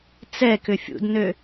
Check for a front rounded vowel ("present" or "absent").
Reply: present